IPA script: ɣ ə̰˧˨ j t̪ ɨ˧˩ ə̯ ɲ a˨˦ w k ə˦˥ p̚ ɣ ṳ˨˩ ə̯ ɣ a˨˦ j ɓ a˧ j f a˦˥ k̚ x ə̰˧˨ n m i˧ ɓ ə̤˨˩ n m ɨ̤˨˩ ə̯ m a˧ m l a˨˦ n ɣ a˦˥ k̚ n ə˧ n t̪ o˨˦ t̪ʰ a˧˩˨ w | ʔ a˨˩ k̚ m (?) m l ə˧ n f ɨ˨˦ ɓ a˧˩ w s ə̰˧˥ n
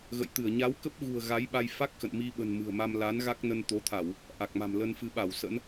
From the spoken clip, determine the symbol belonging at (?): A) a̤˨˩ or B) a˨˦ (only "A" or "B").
A